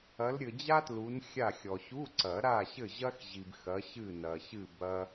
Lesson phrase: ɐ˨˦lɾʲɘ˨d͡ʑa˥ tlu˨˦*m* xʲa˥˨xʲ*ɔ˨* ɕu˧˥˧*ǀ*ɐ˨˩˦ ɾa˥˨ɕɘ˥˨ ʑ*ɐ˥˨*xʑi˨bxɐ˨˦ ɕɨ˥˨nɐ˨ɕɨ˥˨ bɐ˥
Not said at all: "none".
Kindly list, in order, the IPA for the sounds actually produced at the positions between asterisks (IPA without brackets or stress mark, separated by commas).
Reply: n, ɔ˨, ǀ, ɐ˥